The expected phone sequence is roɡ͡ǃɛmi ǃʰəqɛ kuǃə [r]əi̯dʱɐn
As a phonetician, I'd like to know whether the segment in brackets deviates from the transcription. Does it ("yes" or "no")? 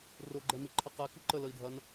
yes